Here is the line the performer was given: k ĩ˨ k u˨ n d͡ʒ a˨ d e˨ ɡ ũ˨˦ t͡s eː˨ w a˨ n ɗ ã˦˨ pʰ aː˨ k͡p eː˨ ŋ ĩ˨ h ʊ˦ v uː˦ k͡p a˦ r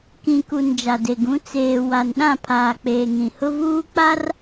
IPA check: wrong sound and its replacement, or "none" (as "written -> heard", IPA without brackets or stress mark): none